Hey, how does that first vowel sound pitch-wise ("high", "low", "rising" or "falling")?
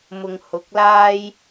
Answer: low